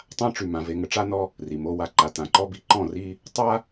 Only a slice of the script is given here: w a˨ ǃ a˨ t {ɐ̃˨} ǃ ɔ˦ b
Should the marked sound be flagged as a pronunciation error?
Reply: yes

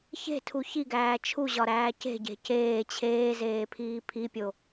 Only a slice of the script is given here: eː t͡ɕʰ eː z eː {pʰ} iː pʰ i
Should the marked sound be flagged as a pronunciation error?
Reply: no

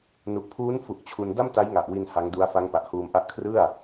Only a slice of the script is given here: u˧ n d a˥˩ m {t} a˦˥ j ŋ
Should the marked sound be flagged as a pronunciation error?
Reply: no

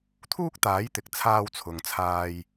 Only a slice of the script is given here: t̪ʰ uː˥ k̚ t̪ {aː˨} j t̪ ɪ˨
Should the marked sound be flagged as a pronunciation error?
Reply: yes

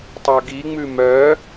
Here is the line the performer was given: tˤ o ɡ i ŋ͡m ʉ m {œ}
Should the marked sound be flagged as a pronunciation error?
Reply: no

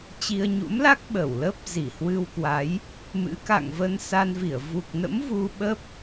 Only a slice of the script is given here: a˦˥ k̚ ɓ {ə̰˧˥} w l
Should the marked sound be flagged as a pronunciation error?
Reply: yes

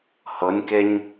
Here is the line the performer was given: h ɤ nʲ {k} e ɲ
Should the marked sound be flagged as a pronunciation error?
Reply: no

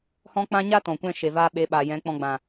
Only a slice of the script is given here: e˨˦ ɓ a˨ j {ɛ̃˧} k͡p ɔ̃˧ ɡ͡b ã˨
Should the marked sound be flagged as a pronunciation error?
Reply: yes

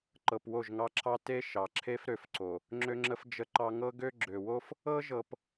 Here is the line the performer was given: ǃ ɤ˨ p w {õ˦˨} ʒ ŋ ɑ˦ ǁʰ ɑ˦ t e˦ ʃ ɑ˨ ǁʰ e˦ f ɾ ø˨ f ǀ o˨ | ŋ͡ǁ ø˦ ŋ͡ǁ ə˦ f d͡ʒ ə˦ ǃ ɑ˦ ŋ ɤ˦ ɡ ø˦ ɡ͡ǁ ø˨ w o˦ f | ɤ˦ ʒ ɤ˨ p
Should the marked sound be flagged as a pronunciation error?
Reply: yes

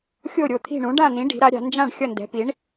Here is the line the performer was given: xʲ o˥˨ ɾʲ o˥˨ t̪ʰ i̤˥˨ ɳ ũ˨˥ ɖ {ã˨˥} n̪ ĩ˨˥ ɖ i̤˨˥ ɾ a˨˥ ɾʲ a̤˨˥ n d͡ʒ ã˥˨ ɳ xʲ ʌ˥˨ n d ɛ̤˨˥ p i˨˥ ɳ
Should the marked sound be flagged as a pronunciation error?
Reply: yes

